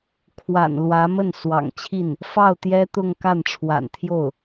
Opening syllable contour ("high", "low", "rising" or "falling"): low